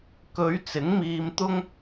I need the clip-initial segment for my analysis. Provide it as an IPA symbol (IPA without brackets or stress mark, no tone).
k